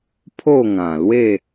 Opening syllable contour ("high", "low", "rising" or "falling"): falling